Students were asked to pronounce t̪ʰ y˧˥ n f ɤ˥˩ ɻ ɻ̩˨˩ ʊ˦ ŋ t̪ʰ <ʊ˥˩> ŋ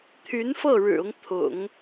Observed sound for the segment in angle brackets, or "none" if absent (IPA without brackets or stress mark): ʊ̰˨˩˦